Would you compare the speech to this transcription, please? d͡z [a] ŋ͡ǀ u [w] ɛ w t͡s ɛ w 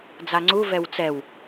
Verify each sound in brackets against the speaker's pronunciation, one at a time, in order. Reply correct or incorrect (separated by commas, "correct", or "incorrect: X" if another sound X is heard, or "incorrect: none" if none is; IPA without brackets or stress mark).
correct, incorrect: v